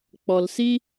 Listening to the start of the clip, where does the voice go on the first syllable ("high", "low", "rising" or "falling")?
low